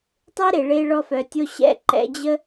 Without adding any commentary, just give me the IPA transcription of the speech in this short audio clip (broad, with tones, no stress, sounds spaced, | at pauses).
tˤ e˦ ɾ e˨ ɭ e˧ ɭ ɔ˧ f œ˨ tʲ o˧ ɕ ɛ̰˦ ǃ ɛ̰˧ d͡ʑ ə˦